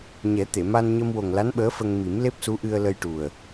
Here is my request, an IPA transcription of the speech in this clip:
ɲ ɛ˨˩˦ t̪ e˨˩˨ m a˧ n ɲ ə˧ m w o˨˩ ŋ l a˧˥ n ɓ əː˧˥ f ə˧ ŋ m i˨˩˦ m l e˦˥ p̚ s u˧˥ ʔ ɨ˧ ə̯ l ə˧ j ʈ u˨˩ ə̯

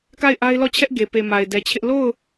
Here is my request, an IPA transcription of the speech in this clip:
k a˦˨ ɪ̯ ʔ a˦ ɪ̯ l ɔ˦˨ t͡ɕʰ ɛ˦ ʔ ɡ e˨ p e˨ m a˨ ɪ̯ d ɛ˨ t͡ɕʰ ɪ˦ ʔ l o˦˨ ʊ̯

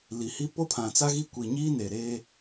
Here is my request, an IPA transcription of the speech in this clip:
l i˨ h i˦ p o˦ pʰ ã˨ t͡s a˦ ɣ i˦˨ kʷ i˨ ɲ iː˦ n e˨ ɾ eː˦

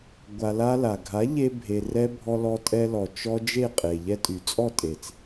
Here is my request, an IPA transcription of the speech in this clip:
ɡʷ a˧ l a˦ l a˨ ɡʱ a˨˦ ʎ e˧ bʱ e˨ r ɛ˦ bʱ ɔ˧ l ɔ˧ tʼ ɛ˧ l ɔ˨ t͡ʃ ɔ˦ d͡ʒ e˦˨ qʼ e˨ ʎ ɛ˦ tʼ y˨ t͡sʼ ɔ˦˨ tʼ e˨ t͡s

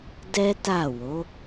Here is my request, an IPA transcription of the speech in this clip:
d ɛ˦ t a˦˨ w o˨˦

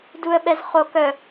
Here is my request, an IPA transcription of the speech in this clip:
d u ə̯ ɓ ɛ z χ o k œ

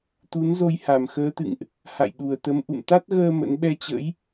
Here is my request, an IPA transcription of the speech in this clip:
t̪ u˨˦ n z o˧ j h a˨˩ m x əː˨˦ t̪ ɨ̰˧˨ ŋ ʔ | h a̰˧˨ j ɗ u˨˩ ə̯ t̪ ə˨˦ m ʔ ṵ˧˨ m t̪ a˦˥ t̚ ɣ əː˧ m ə̰˧˥ n ɓ ɛ˧ t͡ɕ ə̰˧˥ j

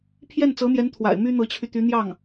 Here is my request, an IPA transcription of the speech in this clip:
pʰ j ɛ˥˩ n t͡s ɤ˧˥ n̪ j ɛ˧˥ n t̪ʰ w a̰˨˩ ɪ̯ m y˥ n̪ ɤ˧˥ t͡ɕʰ y˧ t̪ y˧˥ n̪ j ɑ˥˩ ŋ

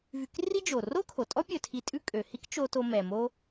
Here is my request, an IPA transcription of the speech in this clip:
v y˧ k r i˥ d͡ʒ o˩ r o˥ kʰ o˩ tʼ ɔ˥ pʲ ɵ˧ tʰ i˧ tʼ ʉ˥ kʼ ø˩ h i˥ k t͡ʃ o˧ t o˧ m ɛ˩ m o˥

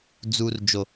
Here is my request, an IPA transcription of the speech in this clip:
d͡z u˨ r d͡ʒ o˨

